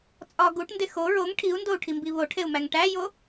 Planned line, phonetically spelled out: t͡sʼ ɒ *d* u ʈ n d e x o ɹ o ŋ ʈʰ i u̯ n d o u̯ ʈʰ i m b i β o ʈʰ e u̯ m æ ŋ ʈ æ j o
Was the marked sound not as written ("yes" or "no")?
yes